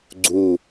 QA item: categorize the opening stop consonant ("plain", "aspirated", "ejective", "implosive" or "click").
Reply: click